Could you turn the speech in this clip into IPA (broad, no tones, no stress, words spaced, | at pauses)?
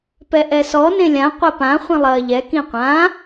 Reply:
pɛʔɛsɔ nẽlʲã qʷɛpã χʷĩlˠɐːʎɛ kĩqʷã